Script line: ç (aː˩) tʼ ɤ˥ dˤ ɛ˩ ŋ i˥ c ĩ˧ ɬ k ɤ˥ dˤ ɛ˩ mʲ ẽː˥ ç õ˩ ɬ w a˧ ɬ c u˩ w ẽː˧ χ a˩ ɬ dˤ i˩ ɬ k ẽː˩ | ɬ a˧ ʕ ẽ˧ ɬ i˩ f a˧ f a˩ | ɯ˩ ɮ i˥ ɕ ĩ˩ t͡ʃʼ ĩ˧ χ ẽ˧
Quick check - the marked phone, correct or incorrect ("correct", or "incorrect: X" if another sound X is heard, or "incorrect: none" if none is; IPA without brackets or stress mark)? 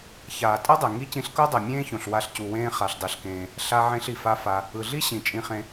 correct